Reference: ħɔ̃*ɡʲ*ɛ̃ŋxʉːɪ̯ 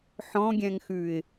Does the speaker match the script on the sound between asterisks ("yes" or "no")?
yes